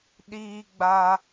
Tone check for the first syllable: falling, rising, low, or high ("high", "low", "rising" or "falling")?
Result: high